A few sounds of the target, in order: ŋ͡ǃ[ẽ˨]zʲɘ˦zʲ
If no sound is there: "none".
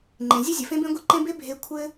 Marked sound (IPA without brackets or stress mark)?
ẽ˨